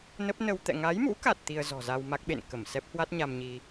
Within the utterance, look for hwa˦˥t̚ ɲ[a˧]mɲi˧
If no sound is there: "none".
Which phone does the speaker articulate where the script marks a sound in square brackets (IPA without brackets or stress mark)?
a˧